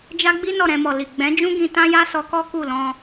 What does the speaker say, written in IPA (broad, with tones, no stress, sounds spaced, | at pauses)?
d͡ʒ a˦ ɡ͡b i˦ n ɔ˦˨ ɾ ɛ̃˧ m ɔ˨ l i˨ ɡ͡b ɛ̃˨˦ d͡ʒ ũ˦ ɡ ĩ˧ t ã˦ j a˦ s ɔ˧ k ɔ˦ k u˦˨ l ɔ̃˧